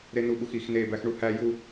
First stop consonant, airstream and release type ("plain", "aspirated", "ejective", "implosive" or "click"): implosive